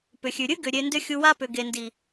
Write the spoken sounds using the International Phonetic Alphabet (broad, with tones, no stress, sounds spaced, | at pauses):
p ʏ˨ xʲ ʉ˨ ɾʲ ɨ˦ ɡ ʏ˨ ɾʲ e˧ n d ʏ˦ xʲ u˧ w a˦ p ʏ˨ ɡ e˨ n d i˨